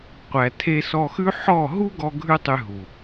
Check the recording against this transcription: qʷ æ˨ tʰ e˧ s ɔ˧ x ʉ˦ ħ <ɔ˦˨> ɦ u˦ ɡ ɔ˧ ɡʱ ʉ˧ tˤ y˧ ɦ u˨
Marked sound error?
no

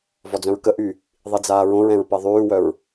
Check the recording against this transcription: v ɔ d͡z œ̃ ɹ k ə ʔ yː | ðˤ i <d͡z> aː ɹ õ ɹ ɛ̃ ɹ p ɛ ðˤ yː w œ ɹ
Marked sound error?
no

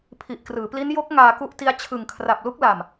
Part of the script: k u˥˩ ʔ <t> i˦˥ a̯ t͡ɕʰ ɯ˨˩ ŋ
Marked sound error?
no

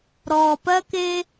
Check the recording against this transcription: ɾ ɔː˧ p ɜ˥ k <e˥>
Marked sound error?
no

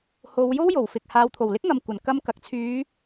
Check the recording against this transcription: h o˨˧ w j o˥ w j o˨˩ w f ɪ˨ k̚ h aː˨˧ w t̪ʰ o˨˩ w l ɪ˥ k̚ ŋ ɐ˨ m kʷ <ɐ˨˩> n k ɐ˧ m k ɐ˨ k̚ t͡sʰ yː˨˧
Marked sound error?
no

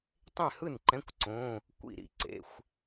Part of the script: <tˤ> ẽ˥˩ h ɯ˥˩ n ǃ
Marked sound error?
no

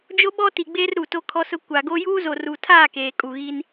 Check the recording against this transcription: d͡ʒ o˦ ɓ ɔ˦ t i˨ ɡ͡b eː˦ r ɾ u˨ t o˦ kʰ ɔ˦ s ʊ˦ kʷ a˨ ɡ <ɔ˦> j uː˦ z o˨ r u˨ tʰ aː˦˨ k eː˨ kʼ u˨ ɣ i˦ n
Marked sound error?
yes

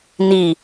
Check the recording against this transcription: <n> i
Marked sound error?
no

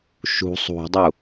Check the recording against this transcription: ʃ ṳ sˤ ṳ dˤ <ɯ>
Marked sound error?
yes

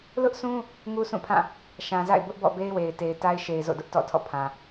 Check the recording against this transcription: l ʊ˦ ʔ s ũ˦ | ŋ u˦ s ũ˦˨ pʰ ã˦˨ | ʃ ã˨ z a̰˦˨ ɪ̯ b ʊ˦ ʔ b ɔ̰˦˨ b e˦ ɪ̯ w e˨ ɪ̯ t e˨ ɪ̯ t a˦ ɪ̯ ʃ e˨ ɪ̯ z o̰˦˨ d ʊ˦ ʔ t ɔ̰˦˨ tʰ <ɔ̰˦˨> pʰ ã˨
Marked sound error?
no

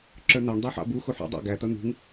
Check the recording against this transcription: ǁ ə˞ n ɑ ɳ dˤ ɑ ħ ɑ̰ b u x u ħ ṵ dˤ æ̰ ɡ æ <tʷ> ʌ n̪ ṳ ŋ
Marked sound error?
yes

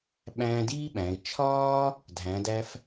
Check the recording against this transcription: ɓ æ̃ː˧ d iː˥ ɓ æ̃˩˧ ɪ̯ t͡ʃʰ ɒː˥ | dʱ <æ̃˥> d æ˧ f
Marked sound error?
yes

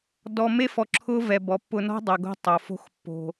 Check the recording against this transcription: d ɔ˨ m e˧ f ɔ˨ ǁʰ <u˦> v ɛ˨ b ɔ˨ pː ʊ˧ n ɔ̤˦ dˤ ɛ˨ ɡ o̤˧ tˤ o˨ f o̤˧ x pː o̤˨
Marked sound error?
yes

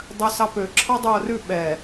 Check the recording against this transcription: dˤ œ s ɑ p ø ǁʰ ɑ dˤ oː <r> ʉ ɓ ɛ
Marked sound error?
no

